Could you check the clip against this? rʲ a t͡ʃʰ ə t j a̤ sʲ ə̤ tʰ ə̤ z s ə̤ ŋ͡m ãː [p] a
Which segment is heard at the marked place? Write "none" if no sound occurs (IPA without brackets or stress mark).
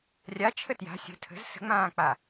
k͡p